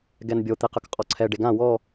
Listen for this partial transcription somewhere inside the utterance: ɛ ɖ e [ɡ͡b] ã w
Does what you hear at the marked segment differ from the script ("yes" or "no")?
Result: yes